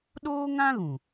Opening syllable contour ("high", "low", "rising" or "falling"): high